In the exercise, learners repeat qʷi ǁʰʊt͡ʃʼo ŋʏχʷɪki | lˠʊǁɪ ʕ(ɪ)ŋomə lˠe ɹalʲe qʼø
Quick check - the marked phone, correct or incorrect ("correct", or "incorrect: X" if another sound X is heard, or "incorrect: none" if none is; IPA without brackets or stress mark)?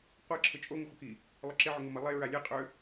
incorrect: ʏ